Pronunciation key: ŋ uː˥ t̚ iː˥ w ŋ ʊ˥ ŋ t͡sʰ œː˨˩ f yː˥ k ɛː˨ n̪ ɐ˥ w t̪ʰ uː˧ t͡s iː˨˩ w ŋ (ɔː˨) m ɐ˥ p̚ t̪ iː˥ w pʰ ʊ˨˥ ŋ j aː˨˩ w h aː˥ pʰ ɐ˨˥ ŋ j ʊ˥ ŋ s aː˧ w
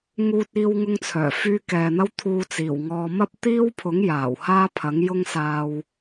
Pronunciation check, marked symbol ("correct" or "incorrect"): incorrect